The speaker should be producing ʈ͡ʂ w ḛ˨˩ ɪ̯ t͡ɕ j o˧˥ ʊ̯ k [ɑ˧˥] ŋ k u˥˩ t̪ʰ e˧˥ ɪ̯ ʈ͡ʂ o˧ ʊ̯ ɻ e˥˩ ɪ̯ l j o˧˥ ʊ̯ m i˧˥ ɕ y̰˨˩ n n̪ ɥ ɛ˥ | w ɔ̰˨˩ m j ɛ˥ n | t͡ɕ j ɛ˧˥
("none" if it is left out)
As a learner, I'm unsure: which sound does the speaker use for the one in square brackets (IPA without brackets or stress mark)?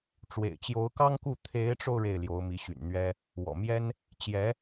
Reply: ɑ˥